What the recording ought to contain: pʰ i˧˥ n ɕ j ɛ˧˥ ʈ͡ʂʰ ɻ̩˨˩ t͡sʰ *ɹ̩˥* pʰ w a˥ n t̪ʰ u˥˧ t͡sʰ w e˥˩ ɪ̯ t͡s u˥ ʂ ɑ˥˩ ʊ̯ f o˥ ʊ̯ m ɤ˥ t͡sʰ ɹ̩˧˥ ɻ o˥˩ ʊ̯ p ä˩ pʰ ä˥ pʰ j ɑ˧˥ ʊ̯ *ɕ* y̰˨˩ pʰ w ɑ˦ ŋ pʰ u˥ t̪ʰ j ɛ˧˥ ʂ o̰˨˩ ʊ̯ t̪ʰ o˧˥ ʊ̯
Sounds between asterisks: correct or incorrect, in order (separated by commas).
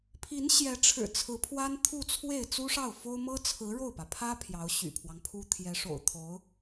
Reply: incorrect, correct